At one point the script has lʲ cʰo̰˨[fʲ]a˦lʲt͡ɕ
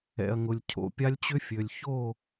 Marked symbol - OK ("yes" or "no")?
no